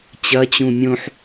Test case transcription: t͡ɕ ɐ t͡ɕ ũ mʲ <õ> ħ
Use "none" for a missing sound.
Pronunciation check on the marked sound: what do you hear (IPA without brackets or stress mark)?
õ